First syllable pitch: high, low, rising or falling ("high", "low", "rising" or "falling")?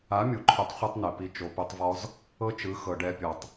rising